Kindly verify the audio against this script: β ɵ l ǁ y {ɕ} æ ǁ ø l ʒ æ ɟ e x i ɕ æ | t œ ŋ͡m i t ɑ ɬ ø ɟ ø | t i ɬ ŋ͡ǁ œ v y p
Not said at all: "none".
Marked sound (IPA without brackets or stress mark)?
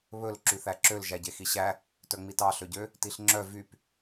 θ